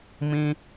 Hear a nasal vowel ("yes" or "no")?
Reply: yes